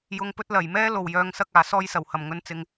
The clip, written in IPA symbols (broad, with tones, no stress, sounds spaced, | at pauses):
j ʊ˨ ŋ p ɵ˧ t̚ l ɐ˨˩ j m ɛː˥ l o˨˩ w j œː˨ ŋ s ɐ˧ k̚ aː˨˩ s ɔː˧ j s ɐ˨˩ w h ɐ˨˩ m ŋ ɵ˧ n t͡s ɪ˧ ŋ